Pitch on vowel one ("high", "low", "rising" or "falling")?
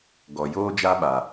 low